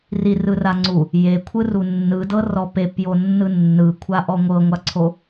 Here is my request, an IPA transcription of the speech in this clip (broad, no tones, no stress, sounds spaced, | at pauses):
r i r ɯ r a ŋ͡ǀ u | j e kʷʰ ɯ r u nː ɯ d ɤ r ɔ p e p j o nː ɯ nː ɯ kʷʰ a ʔ ɔ ŋʷ ɤ ŋʷ a ǀʰ o